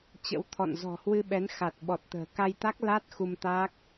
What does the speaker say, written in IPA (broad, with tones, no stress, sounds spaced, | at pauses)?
t͡ɕ ə̰˧˥ w t̪ʰ ɔ̰˧˨ n z ɔ̤˨˩ h w ɨ˧ ɓ ɛ˨˦ n x a˨˩ t̚ ɓ ɔ˨˩ t̚ t̪ ə̤ː˨˩ k a˧ j t̪ a˦˥ k̚ l a˦˥ t̚ x u˧ m t̪ a˦˥ k̚